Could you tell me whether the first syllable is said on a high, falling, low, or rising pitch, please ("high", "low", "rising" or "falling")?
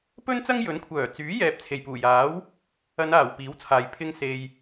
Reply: high